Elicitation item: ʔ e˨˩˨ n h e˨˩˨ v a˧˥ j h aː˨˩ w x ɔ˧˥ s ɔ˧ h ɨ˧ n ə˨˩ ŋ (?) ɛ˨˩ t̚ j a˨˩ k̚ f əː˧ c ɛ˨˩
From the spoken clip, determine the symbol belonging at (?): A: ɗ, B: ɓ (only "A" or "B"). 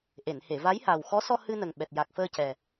B